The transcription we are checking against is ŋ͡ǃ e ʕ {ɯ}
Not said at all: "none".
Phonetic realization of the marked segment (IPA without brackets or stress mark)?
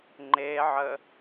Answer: ə